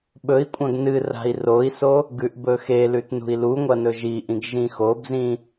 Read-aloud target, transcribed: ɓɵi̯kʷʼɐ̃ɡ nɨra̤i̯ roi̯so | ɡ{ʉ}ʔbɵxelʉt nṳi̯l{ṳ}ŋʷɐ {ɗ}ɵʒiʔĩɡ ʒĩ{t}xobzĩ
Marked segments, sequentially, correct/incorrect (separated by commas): correct, incorrect, incorrect, incorrect